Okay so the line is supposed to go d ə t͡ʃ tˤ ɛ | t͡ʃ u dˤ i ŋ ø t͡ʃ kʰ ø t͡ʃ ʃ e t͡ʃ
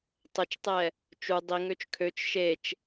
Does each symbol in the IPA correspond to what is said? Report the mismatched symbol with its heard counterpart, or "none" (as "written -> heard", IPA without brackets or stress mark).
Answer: d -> tˤ